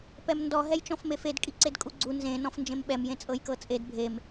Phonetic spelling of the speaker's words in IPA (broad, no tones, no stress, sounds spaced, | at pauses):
p ɛ m n d ɔ ɦ ɛ j t͡ʃ ɔ̃ f m e f e d kʼ i ǀ e d kʼ u ɡ͡ǀ u n z ẽ n ɔ̃ f n d͡ʒ ẽ m ɓ ɛ m j ẽ t͡sʼ ɤ j k ɤ t͡sʼ e d bʱ e m